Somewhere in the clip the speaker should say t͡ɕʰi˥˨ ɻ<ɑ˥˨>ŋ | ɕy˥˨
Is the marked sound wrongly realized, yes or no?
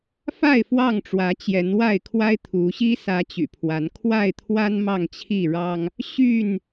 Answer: yes